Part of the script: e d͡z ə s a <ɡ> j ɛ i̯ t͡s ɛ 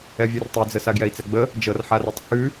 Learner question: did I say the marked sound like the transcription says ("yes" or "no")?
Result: yes